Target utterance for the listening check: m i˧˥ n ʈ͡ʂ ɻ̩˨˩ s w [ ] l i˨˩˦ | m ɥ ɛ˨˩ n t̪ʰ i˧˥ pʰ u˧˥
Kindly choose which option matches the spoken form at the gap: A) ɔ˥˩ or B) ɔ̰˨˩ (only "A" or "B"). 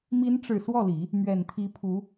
A